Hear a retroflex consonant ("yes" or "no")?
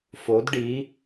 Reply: yes